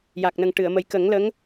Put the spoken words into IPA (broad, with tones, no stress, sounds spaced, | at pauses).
j a˨˩ k̚ n ə˨˩ ŋ ʈ ɨ˨˩˨ ə̯ m ə˨˩ j k ə˨˩˦ ŋ l ə˧˥ ŋ